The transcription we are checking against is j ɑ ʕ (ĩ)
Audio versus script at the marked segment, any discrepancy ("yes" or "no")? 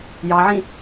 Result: no